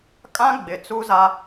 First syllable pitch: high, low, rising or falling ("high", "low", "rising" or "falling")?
high